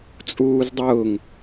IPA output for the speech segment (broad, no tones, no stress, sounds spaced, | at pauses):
t͡sʼ uː z dˤ ʊː ŋ